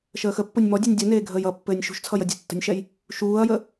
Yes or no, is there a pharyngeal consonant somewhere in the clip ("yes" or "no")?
no